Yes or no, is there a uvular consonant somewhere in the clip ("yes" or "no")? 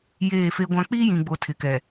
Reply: no